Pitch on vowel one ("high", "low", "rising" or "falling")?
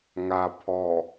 low